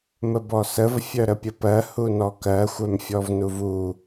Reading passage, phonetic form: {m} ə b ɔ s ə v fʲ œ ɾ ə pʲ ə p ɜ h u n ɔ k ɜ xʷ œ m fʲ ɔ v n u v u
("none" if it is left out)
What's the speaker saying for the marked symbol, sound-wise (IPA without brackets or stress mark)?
m